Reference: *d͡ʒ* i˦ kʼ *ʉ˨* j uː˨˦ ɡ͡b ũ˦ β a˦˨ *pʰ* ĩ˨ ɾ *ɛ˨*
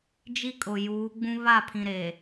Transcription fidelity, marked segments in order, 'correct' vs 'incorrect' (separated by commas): correct, incorrect, correct, incorrect